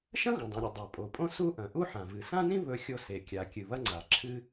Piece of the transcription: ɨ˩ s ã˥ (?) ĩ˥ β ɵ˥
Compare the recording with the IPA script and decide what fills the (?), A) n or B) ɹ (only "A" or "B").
A